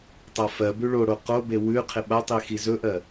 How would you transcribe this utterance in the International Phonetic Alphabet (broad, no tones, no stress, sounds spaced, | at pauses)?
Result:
tˤ a f ɜ b ʉ ɭ o ɽ o q o b e w ʉ qʰ ɪ ɓ a tˤ i x i z ɵ ʔ ɜ